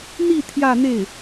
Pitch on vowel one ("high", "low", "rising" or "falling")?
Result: falling